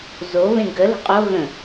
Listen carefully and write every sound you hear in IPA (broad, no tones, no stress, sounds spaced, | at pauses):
z o β ẽ ɡ ə l ə̤ qʼ o ɣ ə̃